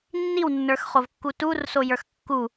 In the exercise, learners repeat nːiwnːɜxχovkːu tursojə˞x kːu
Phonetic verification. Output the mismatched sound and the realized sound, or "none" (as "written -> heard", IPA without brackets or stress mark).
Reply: ɜ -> ə˞